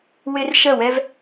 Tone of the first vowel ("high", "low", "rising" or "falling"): high